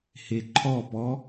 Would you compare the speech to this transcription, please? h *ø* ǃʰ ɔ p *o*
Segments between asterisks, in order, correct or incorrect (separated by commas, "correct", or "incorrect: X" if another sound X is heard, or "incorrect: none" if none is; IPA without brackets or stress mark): incorrect: e, incorrect: ɔ